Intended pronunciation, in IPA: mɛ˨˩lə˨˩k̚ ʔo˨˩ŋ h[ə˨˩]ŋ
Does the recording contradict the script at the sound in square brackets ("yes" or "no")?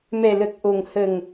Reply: no